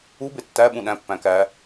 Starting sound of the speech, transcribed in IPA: u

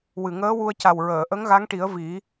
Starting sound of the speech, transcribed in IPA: w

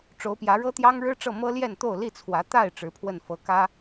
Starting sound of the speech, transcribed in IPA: ʈ͡ʂ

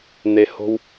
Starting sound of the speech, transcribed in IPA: n̪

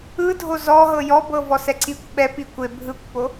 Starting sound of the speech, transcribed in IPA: ɯ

